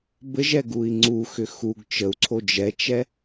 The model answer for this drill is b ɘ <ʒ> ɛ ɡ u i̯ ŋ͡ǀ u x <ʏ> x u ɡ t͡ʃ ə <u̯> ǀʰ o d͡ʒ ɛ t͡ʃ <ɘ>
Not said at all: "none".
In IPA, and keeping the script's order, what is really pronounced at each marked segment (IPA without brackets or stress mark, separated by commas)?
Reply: ʒ, ʏ, u̯, ɛ